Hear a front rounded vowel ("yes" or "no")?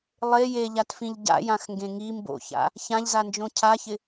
no